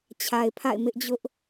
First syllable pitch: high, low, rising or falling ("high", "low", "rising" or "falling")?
low